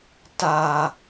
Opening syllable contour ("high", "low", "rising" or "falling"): low